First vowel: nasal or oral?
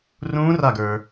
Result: nasal